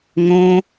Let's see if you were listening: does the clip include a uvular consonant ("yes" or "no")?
no